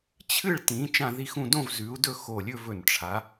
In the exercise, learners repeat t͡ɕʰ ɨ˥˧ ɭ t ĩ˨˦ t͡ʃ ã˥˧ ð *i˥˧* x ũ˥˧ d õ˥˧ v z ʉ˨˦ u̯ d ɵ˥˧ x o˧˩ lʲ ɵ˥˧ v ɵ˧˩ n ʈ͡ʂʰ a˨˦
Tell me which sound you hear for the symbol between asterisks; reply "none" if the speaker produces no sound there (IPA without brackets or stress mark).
i˥˧